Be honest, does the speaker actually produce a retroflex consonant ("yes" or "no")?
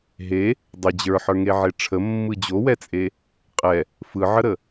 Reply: yes